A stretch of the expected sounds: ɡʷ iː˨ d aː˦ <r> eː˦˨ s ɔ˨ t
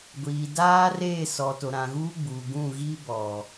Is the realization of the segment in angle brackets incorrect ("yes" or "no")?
no